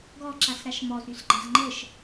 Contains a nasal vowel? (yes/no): no